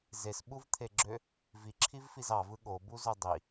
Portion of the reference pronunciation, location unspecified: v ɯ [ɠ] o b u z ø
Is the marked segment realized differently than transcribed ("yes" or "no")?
no